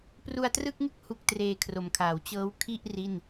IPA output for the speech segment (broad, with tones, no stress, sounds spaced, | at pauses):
p r u˧ a̯ t r ɯ˥˩ k̚ ŋ ɯ˥˩ k̚ h u˦˥ k̚ t r eː˧ kʰ r o˨˩ m kʰ aː˩˦ w t͡ɕ ɤː˦˥ w kʰ i˥˩ ʔ r i˥˩ n